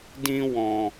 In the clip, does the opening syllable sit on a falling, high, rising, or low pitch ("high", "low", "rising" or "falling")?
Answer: high